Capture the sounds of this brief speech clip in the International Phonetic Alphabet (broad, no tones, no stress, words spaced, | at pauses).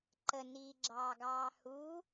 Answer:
ǃə niːɡ͡ǁɑːɡɑːhuː